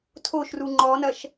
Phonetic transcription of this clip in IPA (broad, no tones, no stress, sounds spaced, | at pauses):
tʰ o ʃ r u ŋ͡ǃ ɔ n ɐ ʃ